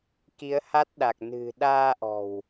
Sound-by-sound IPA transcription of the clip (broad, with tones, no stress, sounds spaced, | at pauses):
k i˨˦ ə̯ h a˦˥ t̚ ɗ a˨˩ k̚ n ɨ̤˨˩ ɗ aː˧ ʔ ɔ̤˨˩ w